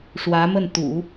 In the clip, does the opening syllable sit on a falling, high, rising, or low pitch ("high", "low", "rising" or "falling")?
rising